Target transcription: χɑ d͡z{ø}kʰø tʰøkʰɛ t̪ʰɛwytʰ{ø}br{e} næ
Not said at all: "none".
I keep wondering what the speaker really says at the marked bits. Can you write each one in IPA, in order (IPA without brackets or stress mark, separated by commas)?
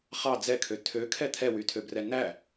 ɛ, ø, ɛ